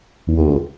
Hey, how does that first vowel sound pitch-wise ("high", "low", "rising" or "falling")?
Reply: low